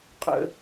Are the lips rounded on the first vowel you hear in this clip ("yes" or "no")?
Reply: no